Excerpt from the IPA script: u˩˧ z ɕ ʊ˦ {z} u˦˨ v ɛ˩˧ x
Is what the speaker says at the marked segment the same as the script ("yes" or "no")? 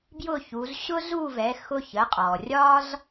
yes